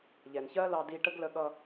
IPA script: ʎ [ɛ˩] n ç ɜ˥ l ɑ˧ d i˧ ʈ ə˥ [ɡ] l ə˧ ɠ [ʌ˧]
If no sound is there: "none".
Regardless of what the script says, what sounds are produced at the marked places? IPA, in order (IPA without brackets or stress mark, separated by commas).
ɛ˩, ɡ, ʌ˧